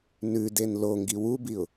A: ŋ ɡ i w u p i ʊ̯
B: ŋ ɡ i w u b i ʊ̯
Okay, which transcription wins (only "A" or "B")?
B